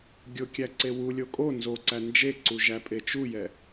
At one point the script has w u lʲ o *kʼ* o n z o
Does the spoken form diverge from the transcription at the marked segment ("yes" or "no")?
no